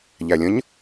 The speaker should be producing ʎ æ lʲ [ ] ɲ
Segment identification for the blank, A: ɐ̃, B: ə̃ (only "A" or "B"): B